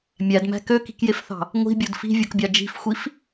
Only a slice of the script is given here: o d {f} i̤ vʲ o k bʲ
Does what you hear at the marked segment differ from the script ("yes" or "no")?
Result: no